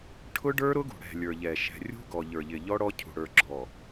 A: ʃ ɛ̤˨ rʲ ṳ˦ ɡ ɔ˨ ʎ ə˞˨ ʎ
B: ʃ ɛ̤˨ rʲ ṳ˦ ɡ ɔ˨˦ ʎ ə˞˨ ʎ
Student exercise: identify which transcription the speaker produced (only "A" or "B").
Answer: A